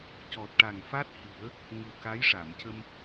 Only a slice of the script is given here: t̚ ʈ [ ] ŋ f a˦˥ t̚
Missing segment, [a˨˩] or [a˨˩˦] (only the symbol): a˨˩